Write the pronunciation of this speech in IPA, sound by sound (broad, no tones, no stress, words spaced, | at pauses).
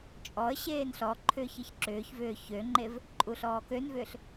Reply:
t͡ʃʼɔə̯ ɕeːnɬɔǃʰʏːç ɨçǁʏːçvʏː çøŋ͡ǃev | ǃʼuɬɔːkønvʏːɬ